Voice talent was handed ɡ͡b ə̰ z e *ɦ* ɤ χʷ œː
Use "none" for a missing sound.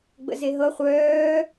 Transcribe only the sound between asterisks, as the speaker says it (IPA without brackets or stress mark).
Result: ɦ